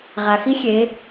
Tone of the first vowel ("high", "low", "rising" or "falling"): low